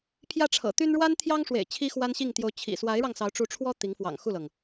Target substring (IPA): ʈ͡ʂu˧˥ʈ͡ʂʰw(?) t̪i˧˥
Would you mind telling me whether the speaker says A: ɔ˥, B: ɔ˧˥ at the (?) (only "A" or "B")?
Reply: A